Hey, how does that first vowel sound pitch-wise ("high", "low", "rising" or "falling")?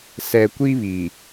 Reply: low